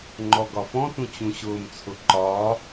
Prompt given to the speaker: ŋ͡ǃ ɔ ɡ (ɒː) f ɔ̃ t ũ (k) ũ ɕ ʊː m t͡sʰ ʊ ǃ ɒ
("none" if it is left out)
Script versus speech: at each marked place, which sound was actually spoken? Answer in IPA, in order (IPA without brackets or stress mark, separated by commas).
ɒ, t͡ɕ